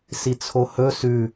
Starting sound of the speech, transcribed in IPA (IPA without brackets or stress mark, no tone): s